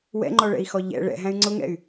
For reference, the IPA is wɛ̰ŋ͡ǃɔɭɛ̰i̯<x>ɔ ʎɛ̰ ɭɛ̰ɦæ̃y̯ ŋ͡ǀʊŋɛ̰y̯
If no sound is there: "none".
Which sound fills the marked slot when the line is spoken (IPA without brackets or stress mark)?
x